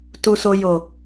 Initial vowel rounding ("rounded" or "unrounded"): rounded